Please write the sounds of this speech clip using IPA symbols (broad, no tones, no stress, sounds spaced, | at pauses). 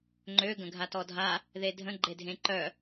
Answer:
ŋ͡ǃ ø ɡ ə̃ ɡʱ a t ɔ dʱ a | ð e dʱ ə̃ ɡ͡ǃ e dʱ ẽ ǃ œ